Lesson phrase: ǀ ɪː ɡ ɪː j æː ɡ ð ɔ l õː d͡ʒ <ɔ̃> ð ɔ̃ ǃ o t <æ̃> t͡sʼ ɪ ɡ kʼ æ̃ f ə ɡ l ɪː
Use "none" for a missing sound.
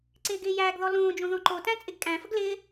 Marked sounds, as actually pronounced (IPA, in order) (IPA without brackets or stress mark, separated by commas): õ, æ̃